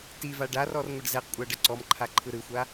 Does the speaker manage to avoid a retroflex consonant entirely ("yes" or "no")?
no